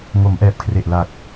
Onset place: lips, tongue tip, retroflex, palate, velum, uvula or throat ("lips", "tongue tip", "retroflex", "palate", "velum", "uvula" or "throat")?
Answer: velum